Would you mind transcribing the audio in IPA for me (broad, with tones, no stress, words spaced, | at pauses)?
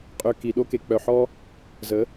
qʼø˨ ki˨ɗo˦ke˨ k͡pœ˨ħɔ˦ | zə˨˦